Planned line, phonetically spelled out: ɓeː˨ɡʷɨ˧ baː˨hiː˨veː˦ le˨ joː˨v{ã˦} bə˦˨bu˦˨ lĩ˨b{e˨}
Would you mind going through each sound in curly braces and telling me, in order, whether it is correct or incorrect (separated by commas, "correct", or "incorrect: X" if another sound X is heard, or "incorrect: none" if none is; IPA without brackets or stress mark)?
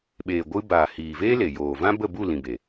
correct, correct